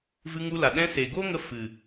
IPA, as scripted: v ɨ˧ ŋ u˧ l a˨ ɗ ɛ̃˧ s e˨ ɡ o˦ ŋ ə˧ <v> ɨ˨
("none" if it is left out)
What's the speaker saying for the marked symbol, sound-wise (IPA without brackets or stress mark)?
f